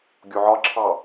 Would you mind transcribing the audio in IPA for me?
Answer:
ɡʲ o ʕ ɒ ǁʰ ɑ

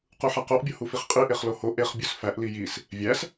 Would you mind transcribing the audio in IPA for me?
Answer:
q u ħ æ q o ʔ bʲ o h u f i χ qʼ i ʔ e χ l o h o ʔ e χ bʲ u s f æ ʔ l i j i s | vʲ æ s

